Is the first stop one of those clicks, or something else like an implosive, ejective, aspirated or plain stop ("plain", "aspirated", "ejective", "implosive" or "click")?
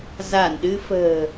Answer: implosive